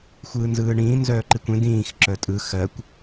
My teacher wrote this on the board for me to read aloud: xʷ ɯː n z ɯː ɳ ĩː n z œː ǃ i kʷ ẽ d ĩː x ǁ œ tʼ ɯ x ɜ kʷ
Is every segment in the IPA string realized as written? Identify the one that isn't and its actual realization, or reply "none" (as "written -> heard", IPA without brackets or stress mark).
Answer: none